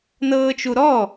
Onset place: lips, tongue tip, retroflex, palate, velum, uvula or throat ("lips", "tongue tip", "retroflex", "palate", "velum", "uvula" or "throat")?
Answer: tongue tip